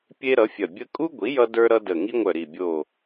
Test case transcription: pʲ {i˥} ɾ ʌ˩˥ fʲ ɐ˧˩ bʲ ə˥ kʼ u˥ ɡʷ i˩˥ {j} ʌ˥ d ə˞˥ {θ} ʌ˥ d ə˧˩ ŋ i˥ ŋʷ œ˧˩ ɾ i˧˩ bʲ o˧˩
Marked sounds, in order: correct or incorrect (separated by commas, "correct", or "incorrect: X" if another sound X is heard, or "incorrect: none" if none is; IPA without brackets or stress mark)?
incorrect: e˥, correct, incorrect: ɾ